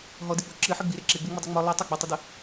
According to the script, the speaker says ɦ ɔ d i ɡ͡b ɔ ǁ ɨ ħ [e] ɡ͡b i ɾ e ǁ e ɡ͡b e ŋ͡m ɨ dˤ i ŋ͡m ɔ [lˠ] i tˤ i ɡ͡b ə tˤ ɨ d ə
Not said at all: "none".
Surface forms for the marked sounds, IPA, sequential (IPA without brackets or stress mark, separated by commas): ɨ, lˠ